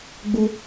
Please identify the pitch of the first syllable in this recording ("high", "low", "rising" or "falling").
high